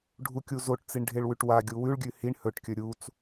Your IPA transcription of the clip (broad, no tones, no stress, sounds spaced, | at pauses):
ɖʱ u kʲ u z o ʈ t͡s i ɳ ɖʱ e ɭ w ʉ ʈ w a ɡʲ u w ʉ ɭ ɡʲ ʉ h i ɳ h ɵ ʈ kʲ ɵ ɾʲ u t͡s